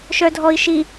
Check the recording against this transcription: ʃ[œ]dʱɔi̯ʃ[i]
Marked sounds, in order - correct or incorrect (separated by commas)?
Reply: correct, correct